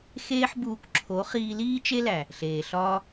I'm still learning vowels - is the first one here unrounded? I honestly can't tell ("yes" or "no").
yes